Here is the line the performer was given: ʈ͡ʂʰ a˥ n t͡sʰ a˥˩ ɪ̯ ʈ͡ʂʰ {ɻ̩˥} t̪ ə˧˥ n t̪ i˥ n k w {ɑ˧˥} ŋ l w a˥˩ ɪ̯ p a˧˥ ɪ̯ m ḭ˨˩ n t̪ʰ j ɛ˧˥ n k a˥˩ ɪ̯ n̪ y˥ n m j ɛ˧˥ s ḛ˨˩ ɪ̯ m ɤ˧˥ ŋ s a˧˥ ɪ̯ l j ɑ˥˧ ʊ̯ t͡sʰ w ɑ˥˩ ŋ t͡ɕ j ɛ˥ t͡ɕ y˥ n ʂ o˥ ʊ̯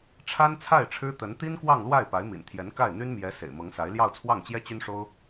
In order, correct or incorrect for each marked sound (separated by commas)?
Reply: correct, incorrect